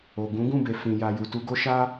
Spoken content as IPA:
o˨ ɡ ũ˨˦ ɡ ũ˦˨ b e˨ f ĩ˨ j a˨ j u˨ t u˧ ɡ o˦ ʃ a˦

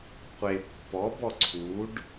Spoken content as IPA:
qʷ e pː ɔ b ɔ ǀʰ u ɖ

